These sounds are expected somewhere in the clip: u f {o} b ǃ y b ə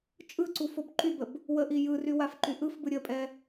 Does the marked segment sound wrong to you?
no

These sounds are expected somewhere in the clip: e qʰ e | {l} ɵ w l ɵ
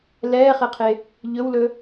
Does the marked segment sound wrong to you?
yes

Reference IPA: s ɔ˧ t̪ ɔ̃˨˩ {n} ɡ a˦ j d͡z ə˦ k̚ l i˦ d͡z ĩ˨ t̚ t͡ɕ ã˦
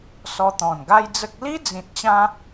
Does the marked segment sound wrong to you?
no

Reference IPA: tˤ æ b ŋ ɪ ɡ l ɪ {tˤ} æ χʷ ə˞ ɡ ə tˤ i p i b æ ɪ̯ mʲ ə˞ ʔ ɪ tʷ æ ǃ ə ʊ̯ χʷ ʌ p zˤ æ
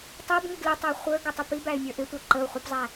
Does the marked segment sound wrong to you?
no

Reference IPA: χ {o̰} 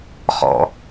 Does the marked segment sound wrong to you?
yes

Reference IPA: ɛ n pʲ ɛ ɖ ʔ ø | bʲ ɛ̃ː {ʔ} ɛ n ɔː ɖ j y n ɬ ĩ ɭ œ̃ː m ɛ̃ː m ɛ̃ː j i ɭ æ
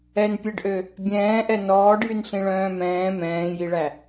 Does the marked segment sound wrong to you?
no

